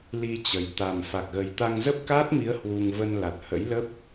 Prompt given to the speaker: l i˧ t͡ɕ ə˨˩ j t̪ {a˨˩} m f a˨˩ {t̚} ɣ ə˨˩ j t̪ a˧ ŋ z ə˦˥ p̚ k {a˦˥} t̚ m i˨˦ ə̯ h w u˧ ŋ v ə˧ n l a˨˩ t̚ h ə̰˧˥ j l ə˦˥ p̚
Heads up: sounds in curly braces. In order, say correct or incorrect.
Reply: correct, incorrect: k̚, incorrect: aː˦˥

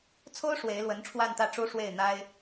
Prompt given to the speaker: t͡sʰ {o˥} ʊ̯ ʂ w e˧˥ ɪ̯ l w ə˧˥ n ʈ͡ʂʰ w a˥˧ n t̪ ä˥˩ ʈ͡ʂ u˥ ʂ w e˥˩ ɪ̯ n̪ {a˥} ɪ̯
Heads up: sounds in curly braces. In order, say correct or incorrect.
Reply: correct, correct

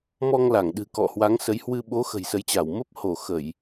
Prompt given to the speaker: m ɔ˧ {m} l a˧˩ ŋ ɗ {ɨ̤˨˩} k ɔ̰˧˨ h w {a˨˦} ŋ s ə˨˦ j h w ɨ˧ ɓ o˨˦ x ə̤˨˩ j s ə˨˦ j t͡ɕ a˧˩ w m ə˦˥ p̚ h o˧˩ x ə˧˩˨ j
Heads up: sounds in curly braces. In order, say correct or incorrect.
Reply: incorrect: ŋ, correct, correct

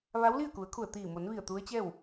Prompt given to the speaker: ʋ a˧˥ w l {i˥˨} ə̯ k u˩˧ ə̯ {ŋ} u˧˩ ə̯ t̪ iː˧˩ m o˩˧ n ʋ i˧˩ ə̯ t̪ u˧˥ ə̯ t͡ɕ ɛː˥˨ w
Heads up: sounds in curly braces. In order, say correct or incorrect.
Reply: correct, incorrect: kʰ

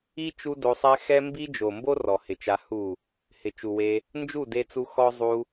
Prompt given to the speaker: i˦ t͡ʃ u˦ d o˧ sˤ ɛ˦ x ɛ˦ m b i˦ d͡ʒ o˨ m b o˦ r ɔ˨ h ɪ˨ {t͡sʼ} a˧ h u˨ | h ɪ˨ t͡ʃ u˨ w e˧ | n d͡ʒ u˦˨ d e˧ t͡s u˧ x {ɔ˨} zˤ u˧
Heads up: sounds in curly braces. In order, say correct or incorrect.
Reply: incorrect: t͡ʃ, incorrect: ɔ˦

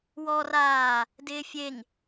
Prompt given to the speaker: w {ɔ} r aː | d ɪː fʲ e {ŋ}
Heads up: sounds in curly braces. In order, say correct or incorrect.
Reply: correct, correct

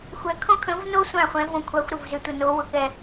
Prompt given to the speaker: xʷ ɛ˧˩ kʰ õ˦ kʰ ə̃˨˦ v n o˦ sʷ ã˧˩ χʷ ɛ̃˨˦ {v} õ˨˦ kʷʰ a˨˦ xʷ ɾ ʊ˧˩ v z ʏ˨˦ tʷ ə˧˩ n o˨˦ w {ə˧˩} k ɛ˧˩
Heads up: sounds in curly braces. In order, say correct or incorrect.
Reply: correct, incorrect: ʊ˧˩

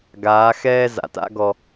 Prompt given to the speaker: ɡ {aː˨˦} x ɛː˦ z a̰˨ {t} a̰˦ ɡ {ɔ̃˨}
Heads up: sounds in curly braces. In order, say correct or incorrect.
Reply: correct, correct, incorrect: ɔ˨

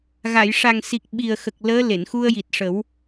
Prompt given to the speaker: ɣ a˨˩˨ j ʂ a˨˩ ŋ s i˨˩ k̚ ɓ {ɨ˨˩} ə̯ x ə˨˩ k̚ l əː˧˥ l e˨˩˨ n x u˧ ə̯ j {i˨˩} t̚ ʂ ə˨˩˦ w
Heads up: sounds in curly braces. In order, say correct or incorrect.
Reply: incorrect: i˨˩, correct

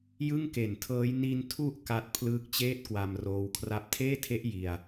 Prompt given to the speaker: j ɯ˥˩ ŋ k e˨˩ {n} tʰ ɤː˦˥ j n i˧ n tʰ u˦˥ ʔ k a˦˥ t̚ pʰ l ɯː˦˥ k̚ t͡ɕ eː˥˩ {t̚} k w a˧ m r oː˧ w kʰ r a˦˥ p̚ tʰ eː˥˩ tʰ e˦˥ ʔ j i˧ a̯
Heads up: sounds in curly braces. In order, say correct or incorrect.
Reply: correct, correct

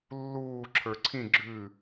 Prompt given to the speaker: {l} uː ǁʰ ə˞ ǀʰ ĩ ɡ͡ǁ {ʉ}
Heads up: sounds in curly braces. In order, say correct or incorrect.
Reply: incorrect: lː, correct

